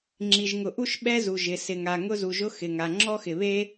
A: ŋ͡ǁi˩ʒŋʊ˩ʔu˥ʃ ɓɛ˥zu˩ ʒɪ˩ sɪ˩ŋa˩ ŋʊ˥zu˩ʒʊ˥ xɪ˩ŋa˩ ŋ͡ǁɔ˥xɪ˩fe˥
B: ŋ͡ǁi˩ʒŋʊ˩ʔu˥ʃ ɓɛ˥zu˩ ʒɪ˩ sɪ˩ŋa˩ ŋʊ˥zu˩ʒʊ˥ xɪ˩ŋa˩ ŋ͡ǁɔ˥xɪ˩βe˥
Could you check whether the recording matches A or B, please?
B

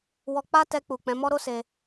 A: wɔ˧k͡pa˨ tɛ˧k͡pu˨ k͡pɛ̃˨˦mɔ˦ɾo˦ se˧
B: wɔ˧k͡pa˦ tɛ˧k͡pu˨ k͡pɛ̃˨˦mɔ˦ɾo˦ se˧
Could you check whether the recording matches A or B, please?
B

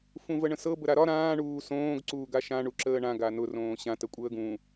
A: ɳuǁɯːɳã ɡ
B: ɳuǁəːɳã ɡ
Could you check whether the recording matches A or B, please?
B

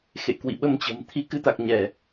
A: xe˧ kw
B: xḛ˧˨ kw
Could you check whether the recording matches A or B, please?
B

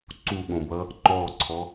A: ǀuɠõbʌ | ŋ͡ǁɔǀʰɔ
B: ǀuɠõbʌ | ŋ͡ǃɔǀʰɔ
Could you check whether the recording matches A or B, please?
B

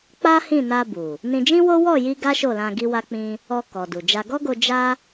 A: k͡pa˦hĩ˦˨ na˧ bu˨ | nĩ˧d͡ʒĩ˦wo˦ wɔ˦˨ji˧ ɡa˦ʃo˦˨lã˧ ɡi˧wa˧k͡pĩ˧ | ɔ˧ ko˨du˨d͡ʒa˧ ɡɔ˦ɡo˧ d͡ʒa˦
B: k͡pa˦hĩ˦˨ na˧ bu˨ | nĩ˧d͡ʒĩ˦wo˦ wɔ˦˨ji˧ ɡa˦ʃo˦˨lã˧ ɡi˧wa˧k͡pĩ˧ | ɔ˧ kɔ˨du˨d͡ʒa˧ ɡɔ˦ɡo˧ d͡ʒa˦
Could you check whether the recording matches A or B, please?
B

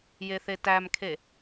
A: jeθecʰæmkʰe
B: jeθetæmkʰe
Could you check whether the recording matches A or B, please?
B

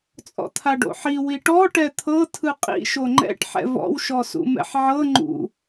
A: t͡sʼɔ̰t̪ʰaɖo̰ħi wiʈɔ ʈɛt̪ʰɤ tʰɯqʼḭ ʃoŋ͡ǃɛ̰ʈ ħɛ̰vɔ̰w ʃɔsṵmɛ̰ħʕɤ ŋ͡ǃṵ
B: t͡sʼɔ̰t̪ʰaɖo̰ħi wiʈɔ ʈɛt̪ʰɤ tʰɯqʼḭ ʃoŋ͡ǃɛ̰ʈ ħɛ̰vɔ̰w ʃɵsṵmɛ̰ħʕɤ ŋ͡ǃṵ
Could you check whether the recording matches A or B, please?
A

